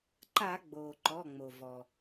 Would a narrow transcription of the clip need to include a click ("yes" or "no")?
yes